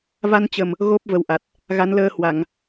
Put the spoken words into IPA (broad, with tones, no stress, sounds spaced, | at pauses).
v a˧ n t͡ɕ ə˨˩ m | ɣ o˦˥ p̚ v ə˨˩ w ʔ a˨˩ t̚ | ɣ a˨˦ n l əː˧ h w a˧˩˨ ŋ